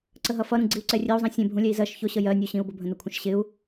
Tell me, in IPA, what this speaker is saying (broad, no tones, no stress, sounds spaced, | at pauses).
ǀ ə ɦ ʌ f ʌ ɾ ũ ɡ͡ǀ i u̯ ǀ ɛ rʲ ɛ u̯ zˤ ĩ sʲ ɛ̃ bʱ ũ lʲ ɛ i̯ z ɜ ʃ ç ʊ ɕ ə j ɜ nʲ u ɕ ĩ u̯ b ʊ bʱ ə̃ n ʊ kʷʰ ə̃ ʃ ɕ ɪ u̯